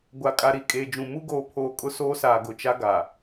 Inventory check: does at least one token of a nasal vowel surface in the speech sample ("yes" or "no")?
yes